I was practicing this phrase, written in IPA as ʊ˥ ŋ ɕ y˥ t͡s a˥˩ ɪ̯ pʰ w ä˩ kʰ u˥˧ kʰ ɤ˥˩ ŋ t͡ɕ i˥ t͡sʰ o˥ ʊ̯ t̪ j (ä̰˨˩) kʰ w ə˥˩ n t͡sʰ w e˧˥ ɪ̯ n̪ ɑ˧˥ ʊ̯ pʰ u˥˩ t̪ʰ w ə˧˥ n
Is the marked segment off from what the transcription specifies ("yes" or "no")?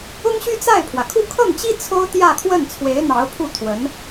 yes